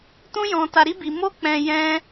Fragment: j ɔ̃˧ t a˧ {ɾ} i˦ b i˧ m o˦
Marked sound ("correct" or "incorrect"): correct